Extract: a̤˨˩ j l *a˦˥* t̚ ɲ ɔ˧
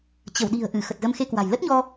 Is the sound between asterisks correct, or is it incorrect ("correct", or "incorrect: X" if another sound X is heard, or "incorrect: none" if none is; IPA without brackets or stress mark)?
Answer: incorrect: ə˦˥